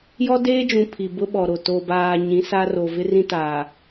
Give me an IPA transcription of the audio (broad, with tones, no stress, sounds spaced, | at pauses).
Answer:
j ɔ˦ d eː˦ d͡ʒ ũ˨ pʰ i˨ b ʊ˦ ɓ ɔ˨ ɾ o˨ t o˨ b aː˨ ɲ ĩ˨˦ s a˦ r o˨ v ɪ˦ r ĩ˦ t aː˨